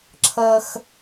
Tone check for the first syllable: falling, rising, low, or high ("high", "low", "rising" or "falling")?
low